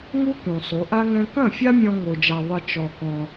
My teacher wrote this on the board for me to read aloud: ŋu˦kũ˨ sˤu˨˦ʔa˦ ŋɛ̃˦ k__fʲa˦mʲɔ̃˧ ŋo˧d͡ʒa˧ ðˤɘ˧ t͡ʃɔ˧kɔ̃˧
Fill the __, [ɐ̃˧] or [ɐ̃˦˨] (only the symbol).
ɐ̃˦˨